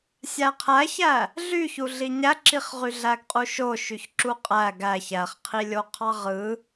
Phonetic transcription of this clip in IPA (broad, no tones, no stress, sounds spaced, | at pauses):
sʲ æ qʰ æ ç æ | ɮ y ç u ɮ i ɲ æ ǁ i χ ʁ y ɮ æ ɡ qʼ u ʃ o ʃ y ç ǁ u qʼ æ ɡ æ ç æ χ qʰ i lʲ o qʰ ɑ ʁ ɯ